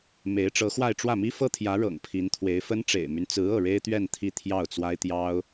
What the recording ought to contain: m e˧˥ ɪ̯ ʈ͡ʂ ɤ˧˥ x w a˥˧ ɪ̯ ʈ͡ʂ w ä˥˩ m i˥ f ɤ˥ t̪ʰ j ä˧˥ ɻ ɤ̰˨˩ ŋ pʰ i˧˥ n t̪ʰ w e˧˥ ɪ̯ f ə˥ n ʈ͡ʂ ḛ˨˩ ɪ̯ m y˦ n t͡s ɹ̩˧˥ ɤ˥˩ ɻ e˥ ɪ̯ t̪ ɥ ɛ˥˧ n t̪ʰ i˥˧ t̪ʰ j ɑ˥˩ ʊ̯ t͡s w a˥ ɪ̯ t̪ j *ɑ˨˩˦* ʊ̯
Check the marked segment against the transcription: incorrect: ɑ˥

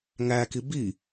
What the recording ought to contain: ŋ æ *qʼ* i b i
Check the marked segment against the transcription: incorrect: k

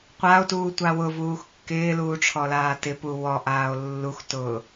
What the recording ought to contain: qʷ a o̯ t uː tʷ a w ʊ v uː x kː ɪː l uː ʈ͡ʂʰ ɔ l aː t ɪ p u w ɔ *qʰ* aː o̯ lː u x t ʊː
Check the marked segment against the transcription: incorrect: ʔ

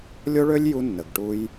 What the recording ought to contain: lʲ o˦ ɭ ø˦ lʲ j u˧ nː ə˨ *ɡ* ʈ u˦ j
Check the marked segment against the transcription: correct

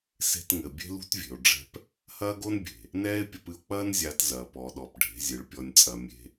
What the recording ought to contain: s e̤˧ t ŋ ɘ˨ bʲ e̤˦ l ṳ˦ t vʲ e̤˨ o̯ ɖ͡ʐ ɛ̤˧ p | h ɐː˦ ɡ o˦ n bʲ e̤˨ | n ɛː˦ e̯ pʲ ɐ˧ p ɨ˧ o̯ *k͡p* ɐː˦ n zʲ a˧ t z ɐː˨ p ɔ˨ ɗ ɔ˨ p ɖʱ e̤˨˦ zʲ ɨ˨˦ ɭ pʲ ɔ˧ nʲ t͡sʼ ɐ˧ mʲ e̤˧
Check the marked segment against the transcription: correct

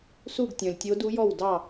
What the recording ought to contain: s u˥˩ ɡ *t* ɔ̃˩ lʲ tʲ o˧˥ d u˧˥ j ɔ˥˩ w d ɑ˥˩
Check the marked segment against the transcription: incorrect: tʲ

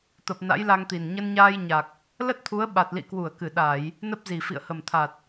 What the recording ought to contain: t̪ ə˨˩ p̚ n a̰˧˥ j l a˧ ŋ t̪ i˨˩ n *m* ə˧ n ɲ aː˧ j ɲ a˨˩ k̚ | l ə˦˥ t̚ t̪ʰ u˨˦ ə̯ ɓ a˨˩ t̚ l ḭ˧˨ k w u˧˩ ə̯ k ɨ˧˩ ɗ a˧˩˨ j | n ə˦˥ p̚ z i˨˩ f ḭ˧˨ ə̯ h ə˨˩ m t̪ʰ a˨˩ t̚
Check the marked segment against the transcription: incorrect: ɲ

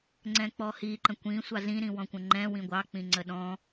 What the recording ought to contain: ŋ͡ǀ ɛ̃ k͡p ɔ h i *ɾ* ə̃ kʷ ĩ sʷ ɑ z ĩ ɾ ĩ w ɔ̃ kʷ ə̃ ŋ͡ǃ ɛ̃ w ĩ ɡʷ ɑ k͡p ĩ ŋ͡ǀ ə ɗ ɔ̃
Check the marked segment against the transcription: incorrect: ǃ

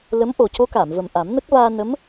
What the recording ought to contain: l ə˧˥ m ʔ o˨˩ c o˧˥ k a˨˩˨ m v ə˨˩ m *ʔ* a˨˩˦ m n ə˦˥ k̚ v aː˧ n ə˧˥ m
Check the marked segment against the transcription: correct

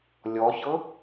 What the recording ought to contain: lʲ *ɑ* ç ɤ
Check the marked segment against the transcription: incorrect: ɔ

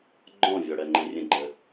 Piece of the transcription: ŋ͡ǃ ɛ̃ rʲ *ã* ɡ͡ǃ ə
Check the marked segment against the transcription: incorrect: ə̃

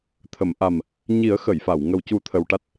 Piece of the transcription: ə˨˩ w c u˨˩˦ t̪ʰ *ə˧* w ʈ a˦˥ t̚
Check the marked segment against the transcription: correct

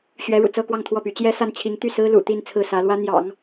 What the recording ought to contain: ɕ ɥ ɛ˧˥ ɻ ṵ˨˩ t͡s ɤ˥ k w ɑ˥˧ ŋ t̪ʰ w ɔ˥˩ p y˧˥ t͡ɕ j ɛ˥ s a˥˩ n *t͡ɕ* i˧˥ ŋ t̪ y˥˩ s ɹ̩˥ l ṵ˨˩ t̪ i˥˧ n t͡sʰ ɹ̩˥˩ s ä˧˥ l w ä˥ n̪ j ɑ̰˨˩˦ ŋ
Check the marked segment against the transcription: incorrect: t͡ɕʰ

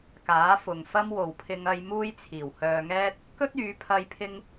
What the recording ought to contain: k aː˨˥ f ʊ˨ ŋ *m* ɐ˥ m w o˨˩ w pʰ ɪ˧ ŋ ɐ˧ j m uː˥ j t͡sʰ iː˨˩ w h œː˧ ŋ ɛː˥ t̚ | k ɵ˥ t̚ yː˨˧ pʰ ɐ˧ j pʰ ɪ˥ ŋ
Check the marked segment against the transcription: incorrect: f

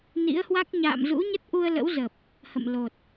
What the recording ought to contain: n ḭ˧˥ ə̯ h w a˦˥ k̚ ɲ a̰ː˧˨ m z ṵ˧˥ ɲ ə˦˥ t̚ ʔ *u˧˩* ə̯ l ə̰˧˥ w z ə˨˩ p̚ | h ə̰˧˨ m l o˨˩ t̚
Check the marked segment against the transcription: incorrect: u˧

